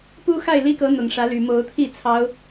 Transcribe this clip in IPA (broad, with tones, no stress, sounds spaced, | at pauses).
p u˦ x a˥˨ ɪ̯ l i˦ k ɤ˨˦ n̪ ʊ˨˩ ŋ ʂ ä˨˦ l y˨˩ m o˨˦ ʊ̯ t̪ʰ i˥˨ t͡sʰ ɑ˨˦ ʊ̯